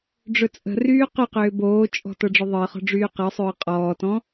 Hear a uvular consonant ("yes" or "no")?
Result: yes